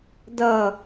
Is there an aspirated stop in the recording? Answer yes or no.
no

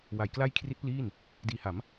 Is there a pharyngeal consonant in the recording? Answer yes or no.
no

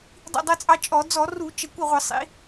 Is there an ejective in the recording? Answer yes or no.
yes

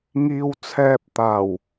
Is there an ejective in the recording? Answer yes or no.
no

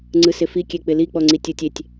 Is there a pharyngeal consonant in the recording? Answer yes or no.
no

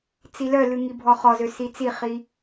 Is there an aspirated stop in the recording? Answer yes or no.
no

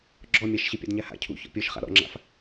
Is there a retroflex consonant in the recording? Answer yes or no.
no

